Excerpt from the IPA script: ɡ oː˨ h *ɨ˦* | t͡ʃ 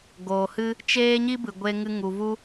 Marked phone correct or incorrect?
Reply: correct